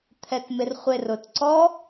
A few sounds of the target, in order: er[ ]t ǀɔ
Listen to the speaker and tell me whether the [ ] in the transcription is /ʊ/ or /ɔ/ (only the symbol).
ʊ